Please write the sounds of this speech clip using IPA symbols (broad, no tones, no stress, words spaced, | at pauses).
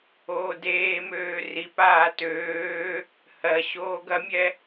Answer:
oːdeːmøː ripaː tøː | hɜ ɕoːɡɐmʲɛ